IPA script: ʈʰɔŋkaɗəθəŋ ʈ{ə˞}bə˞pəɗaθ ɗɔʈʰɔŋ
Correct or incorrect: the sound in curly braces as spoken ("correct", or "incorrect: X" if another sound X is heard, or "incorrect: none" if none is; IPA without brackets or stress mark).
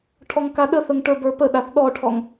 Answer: correct